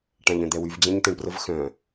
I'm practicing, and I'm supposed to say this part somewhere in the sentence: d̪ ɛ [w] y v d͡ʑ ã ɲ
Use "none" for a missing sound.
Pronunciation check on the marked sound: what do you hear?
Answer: w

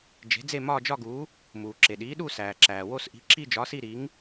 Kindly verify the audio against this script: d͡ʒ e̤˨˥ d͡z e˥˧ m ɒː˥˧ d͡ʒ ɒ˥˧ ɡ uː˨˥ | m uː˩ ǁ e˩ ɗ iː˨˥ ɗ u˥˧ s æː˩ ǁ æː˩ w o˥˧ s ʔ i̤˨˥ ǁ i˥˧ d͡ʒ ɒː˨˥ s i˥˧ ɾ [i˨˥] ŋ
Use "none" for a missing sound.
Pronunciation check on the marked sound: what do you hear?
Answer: i˨˥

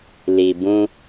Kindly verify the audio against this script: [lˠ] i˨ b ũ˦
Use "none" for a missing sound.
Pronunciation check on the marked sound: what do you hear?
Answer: l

